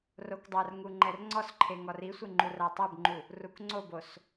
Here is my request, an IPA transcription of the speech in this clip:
r o k dˤ a r ŋ u ŋ͡ǃ ɛ r ŋ͡ǀ ɔ s ǃʰ e ŋ ɔ r i sʷ ɪ ŋ͡ǃ u r a tˤ ɛ b ŋ͡ǃ u | r u k ŋ͡ǀ o b o s

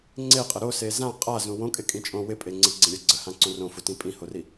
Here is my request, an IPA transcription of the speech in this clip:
ŋ͡ǀ e qʼ ə ɾ o s e z ã qʼ a z ũ w õ kʼ ɪ kʼ ĩ t͡ʃʼ õ w ɪ pʼ e ŋ͡ǀ ɪ ɡ͡ǀ ĩ ɾʲ o ɡ͡ǀ ə h ã ǀ õ r õ f u t ĩ pʼ ĩ h o r i

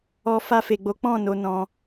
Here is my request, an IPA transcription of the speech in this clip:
ɔ˧ f a˧ f e˨ ɡ͡b o˨˦ k͡p ɔ̃˦˨ n o˧ n ɔ̃˧

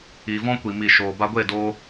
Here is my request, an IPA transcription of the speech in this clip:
iː˨ v ɔ̃˦ kʷ i˨ m i˨ ʃ oː˨ b a˧ ɡʷ e˦˨ d oː˧

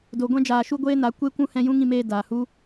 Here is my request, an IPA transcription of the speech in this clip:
d o˨ ɡʷ ɛ̃˧ d͡ʒ aː˨ ʃ u˧ ɡʷ eː˦ n a˨˦ kʷ e˦ kʷ ũ˦ h ɛ̃˧ j ũ˦ ŋ ĩ˧ m eː˧ d aː˨ h u˦

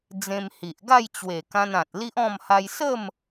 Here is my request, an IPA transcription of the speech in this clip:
d͡z ẽ˧ m h i˨ ʔ ɡ a˥˧ j t͡ɕ w e˨˩ k ã˧ n ã˨ t̚ l i˦ ʔ ɔ̃˥˧ m h a˧ j s ə˥˧ m

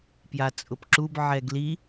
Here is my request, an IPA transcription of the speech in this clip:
p j a t͡sʼ ʊ p ǁ u b ʕ ɛ ɡ l i

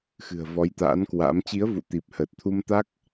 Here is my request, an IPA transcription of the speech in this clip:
x ɨ̤˨˩ ə̯ v ɔ˨˦ j t̪ a̰ː˧˥ n k w a̰ː˧˥ m t͡ɕ i˨˦ ə̯ v ṵ˧˨ t̪ i˨˩ p̚ h əː˨˩ t̚ t̪ʰ u˧ m t̪ a˦˥ k̚

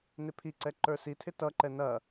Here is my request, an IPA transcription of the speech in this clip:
n ɪ pʰ i ǀ ɛ ǃ ə˞ s i tʰ ɪ t ʌ ǃ ɛ n ɐ

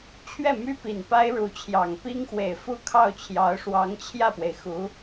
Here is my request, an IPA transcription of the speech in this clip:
t͡ɕʰ ɥ ɛ˥˩ m y˥ p i˨˩ n p a˥ ɪ̯ ɻ u˧˥ t͡ɕʰ j ɑ˨˩ ŋ p i˥ ŋ x w e˨˩ ɪ̯ f u˥˧ kʰ ɑ˥˩ ʊ̯ t͡ɕʰ j ɑ˧˥ ʊ̯ ʂ w ɑ˧˥ ŋ t͡ɕʰ j ä˥˩ p w e˩ ɪ̯ x u˧˥

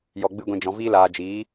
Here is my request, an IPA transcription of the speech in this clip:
j ɔ˧ ɡ͡b ɨ˦ ɡʷ ĩ˧ d͡ʒ ɔ̃˧ v iː˦ l aː˧ d͡ʒ iː˨˦

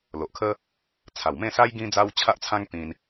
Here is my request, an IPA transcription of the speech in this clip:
l o˨ ʔ kʰ ə˦ | t͡sʰ a˨˩ w m ẽ˥˧ s a˦ j ɡ ĩ˦ d͡z a˦ w t͡ɕʰ a˦ ʔ t͡sʰ ã˦ ŋ t̪ ĩ˧ n

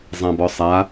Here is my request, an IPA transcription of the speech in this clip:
zˤ ã b ɔ sˤ a

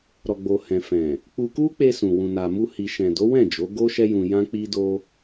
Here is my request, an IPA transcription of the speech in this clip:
ɾ ɔ˨ ɡ͡b o˨ h ɛ̃˨ f ɛ̃˨ | k͡p u˧ k u˦ k͡p e˧ s ũ˨ w ũ˨ n a˨ m u˧ h i˨ ʃ ɛ̃˨ d o˨˦ w ɛ̃˦˨ d͡ʒ o˨˦ ɡ o˦ ʃ ɛ˦ j ũ˧ j ã˦ k͡p i˦ d o˦

